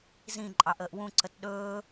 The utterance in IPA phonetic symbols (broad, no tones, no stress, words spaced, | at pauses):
zĩ ǃʼɑʔəːʔwũ ǀətɗɵː